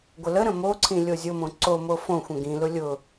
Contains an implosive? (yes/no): no